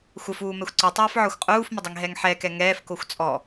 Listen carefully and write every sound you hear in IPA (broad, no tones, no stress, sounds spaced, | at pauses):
xʷ ə f uː m ɛ xʷ ǀ u tˤ ɛː f ʕ ɔ xʷ qʼ uː f m ə dˤ i ŋ ɦ ɛ ŋ ħ ɛ k ɛ ŋ ɛː f k o xʷ t͡sʼ ɔ